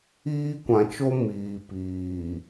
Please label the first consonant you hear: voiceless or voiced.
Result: voiceless